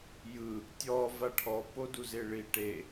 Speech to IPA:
jɯ | tʲɔ vaʈʰɔ poduzeɭi ʈe

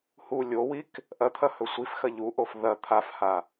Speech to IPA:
hu lʲowik | ʔɐt̪ʰɐhɵ sʷifxɐ ʎuʔof ðɐ t̪ʰafha

